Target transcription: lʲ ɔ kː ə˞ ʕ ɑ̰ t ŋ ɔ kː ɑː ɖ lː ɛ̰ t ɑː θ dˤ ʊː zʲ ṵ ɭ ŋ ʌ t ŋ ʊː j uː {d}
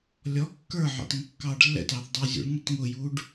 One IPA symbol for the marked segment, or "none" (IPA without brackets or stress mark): ɖ